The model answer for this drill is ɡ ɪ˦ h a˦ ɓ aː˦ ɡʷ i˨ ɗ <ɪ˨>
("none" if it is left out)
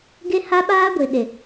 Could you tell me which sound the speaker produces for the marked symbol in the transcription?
ɪ˨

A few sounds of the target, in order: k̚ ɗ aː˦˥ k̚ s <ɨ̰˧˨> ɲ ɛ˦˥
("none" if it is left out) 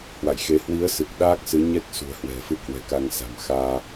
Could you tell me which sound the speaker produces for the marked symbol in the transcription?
ɨ˨˦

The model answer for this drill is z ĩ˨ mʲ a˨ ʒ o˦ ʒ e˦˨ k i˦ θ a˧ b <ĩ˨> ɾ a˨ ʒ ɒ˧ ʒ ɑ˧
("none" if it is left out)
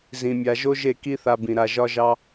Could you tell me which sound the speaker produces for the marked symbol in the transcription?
ĩ˨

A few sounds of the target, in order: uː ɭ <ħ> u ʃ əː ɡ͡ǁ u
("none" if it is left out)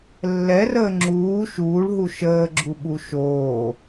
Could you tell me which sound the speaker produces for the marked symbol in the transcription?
ɦ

